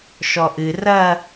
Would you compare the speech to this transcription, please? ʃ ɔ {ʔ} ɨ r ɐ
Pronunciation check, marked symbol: correct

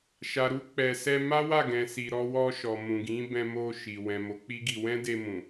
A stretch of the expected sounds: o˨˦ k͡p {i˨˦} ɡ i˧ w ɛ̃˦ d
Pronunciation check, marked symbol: incorrect: i˦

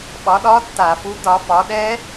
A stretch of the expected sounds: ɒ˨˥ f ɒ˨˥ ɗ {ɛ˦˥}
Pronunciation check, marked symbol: correct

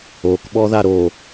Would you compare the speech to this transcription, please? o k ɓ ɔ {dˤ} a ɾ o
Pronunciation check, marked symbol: incorrect: ð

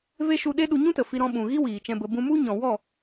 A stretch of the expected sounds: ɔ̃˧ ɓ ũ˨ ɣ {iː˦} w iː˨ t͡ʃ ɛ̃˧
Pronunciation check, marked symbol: incorrect: i˦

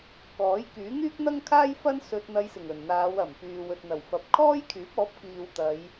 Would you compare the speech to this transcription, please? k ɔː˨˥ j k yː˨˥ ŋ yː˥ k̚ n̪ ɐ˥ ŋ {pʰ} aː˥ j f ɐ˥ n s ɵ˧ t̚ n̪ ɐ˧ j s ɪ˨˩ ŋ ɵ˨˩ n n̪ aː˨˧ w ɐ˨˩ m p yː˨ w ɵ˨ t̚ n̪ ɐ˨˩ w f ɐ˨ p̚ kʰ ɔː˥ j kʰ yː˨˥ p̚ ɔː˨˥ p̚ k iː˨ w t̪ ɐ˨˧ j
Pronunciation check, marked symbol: incorrect: kʰ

